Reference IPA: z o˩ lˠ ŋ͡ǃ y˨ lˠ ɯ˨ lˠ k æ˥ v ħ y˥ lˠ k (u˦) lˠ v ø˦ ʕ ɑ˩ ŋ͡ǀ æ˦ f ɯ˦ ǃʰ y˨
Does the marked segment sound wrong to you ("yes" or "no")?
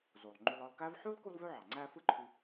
no